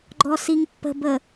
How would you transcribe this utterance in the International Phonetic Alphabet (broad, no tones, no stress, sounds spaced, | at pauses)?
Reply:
ɡ͡ǃ ɔ s i ŋ pː ə̤ b ə